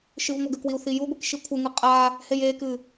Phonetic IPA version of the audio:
ʃɨvŋʷaɡɘkwiu̯ θijuɡʷik ʃikʷʰɘŋɨ qʼa | hejekɨ

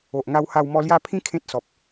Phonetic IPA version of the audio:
o˨ʔŋa˧wha˧w mɔ˧lja˥˧pʰĩ˦ kʰẽ˦t̚sɔ˨p̚

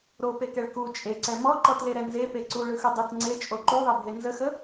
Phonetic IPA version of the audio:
ɾopekɛɭ ku t͡ʃʼeǀɛ mɔǃɔtleɾɛ nzepe ǀuɭɯxɯ dˤət ŋ͡ǀet͡ʃʼo ǃuðˤɛbʱe nzəxə

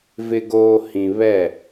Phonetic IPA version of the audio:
vɪ˨ɡoː˨ hĩ˨ βɛ˦˨

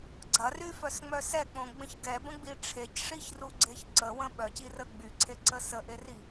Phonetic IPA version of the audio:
ɡ͡ǀɐryfœsŋ͡mœ sɛk͡põɡ͡bə̃ç ɡɛbə̃ɡ͡bi ʈ͡ʂʰecʂiçruɡ͡ǀeç ǀəwə̃ ɓœcirə ɡ͡byǀʰeǀə səʔeri

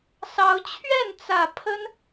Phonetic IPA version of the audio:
sɑ˨˦ʊ̯ t͡ɕʰɥɛ˥˨nt͡sä˨˩ pʰə˦n

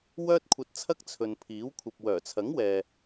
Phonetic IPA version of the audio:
wœː˥t̚kʷʰɐ˧t̚t͡sʰɐ˥k̚ t͡sʰɵ˨npʰiː˨˥w kʷʰɐ˨p̚wœː˨˩t͡sʰɐ˨˥ŋ wɛː˨

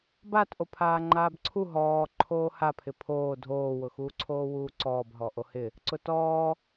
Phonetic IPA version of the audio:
batʔo pʰaːŋ͡ǃaːbǀʰu ɦɔː ǃʰoːhapʰɪ pʰoː dʱoːwʊxuː ǀʰoːwuːǀɔːb ɦɔʔohɪ | ǀʊtɔː

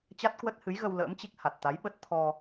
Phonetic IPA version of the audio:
t͡ɕa˦˥t̚kwə˦˥t̚hɨ˨˦jɣə˧w lə̰ː˧˥mt͡ɕi˦˥k̚ ha˨˩t̚t̪a˨˦jɓə˦˥t̚t̪ʰɔ˧

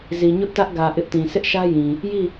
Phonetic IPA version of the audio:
zi˨ɲʊ˦ʔtä˦ʔɡä˨ ʔɪ˦ʔtĩ˨ sʰɪ˦ʔʃä˦jĩ˨ | ji˦˨

